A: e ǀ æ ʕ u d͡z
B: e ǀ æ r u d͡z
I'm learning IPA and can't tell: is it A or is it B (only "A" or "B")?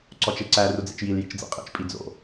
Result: B